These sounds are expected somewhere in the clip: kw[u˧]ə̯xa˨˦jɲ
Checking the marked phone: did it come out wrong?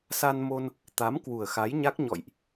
yes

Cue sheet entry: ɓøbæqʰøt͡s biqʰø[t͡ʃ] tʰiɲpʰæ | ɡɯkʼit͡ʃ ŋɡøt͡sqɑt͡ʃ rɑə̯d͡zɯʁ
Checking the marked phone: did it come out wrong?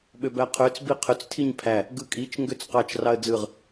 yes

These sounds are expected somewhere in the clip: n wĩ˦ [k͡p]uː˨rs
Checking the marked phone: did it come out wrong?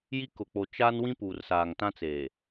yes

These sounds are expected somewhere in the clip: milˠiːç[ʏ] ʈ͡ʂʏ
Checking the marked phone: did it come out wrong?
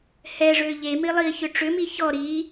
no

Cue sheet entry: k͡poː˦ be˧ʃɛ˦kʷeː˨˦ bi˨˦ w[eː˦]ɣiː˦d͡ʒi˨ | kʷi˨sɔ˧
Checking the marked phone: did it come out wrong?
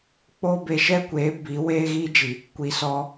no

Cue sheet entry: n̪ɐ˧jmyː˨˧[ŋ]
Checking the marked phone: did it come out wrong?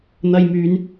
yes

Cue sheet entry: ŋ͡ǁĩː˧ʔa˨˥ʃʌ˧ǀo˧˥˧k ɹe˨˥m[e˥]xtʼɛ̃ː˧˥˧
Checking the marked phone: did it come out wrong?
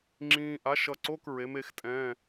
yes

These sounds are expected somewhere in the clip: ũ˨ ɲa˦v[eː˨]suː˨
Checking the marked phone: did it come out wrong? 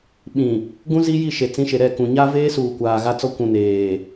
yes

